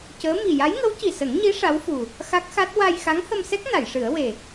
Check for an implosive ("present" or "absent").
absent